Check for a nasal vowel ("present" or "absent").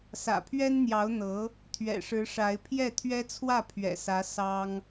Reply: absent